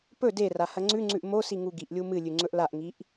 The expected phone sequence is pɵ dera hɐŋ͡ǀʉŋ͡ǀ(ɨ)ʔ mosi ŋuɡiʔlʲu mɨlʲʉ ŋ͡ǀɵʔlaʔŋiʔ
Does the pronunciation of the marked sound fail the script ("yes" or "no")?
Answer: yes